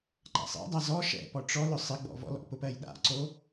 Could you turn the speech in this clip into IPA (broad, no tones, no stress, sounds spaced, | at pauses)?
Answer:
ǃ a̰ sˤ ḛ dˤ a z ɔ ʃ ɛ̰ p ɔ ʈ͡ʂ ɔ l ʊ sˤ ɪ ɡ͡b ɔ̰ v ɔ̰ l ɔ̰ p ʊ p ɜ j ɗ a̰ ǀ o